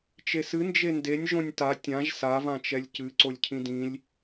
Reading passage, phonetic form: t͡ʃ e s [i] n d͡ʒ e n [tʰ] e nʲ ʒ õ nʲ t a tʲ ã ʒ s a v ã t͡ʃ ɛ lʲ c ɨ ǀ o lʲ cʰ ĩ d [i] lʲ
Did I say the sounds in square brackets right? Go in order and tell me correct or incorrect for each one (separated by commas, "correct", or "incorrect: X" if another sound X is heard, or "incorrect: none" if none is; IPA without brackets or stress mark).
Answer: incorrect: ɨ, incorrect: d, incorrect: ĩ